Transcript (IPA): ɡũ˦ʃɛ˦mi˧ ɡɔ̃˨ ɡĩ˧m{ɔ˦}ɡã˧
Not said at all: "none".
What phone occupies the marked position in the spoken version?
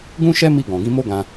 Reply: o˦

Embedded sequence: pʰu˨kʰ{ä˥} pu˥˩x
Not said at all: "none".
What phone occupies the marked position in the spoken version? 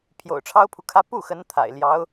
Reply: ä˥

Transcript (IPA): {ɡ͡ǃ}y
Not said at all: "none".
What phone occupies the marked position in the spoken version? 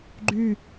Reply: ɡ͡ǃ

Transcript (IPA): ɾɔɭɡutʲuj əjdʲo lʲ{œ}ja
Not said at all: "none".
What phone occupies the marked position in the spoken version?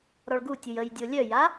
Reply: œ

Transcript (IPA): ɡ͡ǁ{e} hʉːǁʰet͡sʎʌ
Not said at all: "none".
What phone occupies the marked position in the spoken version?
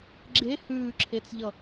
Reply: e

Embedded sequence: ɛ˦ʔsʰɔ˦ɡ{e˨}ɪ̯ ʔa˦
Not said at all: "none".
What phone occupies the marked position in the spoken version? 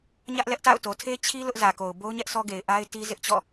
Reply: e˨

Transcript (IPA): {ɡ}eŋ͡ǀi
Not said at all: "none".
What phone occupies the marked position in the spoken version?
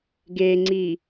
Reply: ɡ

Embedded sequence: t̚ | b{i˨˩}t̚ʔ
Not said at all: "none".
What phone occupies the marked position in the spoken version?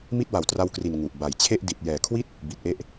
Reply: i˨˩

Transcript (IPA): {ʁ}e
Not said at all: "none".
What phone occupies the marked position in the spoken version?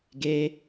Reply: ɡ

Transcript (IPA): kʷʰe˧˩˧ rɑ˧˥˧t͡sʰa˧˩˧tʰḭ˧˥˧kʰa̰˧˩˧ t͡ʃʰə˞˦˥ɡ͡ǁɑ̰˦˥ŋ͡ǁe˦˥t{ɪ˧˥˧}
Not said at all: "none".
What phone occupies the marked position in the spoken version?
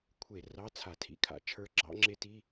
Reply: i˧˥˧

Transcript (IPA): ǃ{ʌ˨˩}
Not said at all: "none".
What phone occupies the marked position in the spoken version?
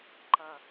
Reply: ʌ˨˩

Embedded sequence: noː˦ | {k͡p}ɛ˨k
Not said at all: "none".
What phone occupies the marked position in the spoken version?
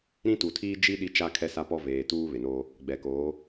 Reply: ɡ͡b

